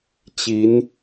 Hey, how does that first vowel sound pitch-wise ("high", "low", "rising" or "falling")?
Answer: rising